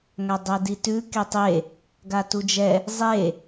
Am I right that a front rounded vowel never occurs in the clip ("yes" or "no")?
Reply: yes